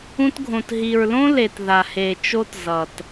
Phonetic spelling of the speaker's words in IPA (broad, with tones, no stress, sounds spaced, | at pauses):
ũ˧ t ɡʱ õ˨ t ɦ i˨ ɹ l õ˦ l e˨ t ð a˨ h e˨ t͡ʃ o˦ t z ʌ˨ t